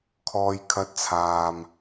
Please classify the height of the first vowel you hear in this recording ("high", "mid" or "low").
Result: mid